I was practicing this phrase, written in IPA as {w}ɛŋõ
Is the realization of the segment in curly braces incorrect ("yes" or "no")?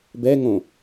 yes